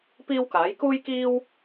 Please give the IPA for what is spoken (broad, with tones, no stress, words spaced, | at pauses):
piː˥wkaː˨˥j kuː˥jkiː˥w